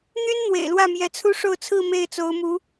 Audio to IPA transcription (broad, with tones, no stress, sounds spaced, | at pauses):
n̪ y˥ n n̪ w ḛ˨˩ ɪ̯ l w ä˥˩ m j ɛ˧˥ t͡sʰ u˥ ʂ o˥˧ ʊ̯ t͡sʰ ɹ̩˥˧ m e˥˩ ɪ̯ t͡s o˧˥ ʊ̯ m u˧˥